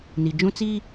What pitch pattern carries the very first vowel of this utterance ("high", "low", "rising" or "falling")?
low